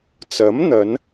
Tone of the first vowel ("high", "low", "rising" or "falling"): rising